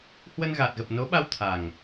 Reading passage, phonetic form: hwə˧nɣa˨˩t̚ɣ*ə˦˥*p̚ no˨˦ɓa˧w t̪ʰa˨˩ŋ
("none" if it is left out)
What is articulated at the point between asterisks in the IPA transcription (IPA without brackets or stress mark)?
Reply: ə˨˩